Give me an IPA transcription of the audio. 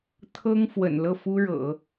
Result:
t̪ʰ ɤ˥ ŋ f w ə̰˨˩ n l ɤ˥˩ f u˥ ɻ ɤ̰˨˩˦

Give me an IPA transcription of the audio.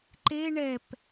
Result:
ǃ e ɳ ɛ p

